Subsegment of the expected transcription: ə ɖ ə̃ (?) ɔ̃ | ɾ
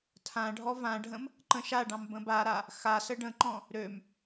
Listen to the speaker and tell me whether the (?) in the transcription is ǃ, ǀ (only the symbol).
ǃ